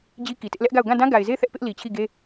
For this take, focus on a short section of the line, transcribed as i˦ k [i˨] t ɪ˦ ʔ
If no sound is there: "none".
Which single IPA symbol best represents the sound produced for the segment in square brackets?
i˨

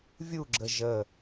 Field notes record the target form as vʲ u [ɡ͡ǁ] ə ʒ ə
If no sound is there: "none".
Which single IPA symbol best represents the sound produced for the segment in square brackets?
ɡ͡ǁ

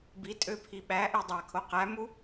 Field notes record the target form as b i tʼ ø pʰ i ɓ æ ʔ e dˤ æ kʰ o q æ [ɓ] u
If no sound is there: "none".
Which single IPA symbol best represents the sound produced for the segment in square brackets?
m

